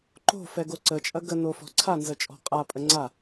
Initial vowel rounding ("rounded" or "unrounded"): rounded